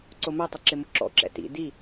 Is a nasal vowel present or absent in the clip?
absent